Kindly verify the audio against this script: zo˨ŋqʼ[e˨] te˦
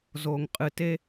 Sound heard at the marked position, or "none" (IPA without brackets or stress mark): ɨ˨